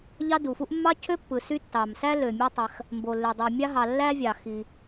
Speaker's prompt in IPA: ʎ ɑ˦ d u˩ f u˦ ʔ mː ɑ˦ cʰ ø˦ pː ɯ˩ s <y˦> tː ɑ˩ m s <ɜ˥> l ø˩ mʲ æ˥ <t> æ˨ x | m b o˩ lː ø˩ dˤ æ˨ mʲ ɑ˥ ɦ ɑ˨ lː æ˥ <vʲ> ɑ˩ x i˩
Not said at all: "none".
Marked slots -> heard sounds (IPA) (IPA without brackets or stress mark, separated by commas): y˦, æ˥, tˤ, vʲ